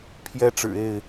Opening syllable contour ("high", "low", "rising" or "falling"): high